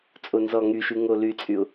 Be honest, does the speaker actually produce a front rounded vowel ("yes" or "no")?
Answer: yes